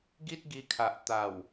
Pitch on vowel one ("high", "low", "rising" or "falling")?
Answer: high